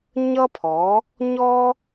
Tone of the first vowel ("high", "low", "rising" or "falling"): high